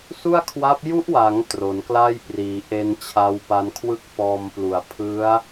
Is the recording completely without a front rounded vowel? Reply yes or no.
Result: yes